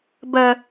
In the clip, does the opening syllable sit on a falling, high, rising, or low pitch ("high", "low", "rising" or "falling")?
high